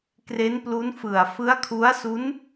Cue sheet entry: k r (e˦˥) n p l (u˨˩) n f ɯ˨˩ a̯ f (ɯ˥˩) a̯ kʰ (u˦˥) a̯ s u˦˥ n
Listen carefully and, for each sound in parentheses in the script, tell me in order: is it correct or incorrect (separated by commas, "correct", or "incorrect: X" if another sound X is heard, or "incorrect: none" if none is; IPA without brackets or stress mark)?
correct, incorrect: u˦˥, incorrect: ɯ˦˥, correct